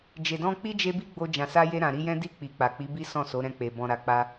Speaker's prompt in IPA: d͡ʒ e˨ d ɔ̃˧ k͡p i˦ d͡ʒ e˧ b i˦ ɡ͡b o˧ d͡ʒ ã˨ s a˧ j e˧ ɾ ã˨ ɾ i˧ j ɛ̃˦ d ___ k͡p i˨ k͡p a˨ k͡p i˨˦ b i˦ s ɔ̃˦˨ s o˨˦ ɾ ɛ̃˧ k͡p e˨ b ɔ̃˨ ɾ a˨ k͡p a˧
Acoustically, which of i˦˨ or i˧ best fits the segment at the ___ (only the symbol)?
i˦˨